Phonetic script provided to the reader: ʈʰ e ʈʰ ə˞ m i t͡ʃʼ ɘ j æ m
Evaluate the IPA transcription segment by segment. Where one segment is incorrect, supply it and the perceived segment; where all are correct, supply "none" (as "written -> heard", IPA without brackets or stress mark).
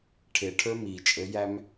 none